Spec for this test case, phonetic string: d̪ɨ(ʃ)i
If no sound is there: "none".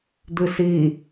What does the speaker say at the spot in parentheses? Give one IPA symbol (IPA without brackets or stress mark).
s